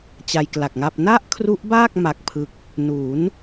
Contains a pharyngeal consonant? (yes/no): no